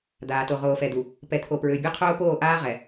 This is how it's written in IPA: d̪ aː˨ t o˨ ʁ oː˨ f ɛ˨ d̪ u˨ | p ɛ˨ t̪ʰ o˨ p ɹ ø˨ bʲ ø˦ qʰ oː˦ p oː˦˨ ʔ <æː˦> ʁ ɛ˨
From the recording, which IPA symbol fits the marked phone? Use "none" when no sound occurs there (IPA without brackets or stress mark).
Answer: aː˦